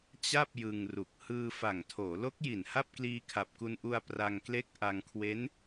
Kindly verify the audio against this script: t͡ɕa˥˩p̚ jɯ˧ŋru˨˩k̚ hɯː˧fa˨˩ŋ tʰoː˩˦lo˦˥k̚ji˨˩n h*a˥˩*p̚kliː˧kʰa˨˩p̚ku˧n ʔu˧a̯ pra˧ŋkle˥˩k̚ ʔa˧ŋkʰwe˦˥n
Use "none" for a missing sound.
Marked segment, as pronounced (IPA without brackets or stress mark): a˥˩